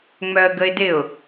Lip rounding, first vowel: rounded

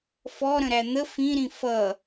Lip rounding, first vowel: rounded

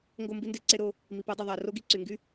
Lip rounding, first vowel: rounded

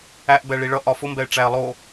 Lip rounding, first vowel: unrounded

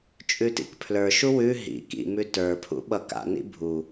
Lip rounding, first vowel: rounded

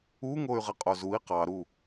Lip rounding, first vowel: rounded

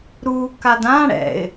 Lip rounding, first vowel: rounded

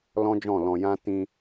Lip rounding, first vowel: rounded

